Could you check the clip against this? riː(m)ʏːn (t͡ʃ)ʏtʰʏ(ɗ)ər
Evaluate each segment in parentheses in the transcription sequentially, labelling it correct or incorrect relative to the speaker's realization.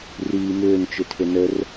correct, correct, incorrect

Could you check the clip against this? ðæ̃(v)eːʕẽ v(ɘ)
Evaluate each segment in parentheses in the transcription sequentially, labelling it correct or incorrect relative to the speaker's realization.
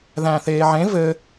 incorrect, correct

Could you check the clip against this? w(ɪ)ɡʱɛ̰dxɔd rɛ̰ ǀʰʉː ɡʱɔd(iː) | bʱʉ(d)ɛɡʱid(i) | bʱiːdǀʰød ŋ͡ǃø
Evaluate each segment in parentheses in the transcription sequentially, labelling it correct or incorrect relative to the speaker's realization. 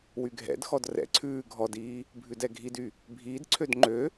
incorrect, correct, correct, incorrect

